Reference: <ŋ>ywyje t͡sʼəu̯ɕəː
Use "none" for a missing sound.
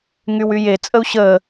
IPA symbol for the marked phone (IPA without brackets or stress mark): ŋ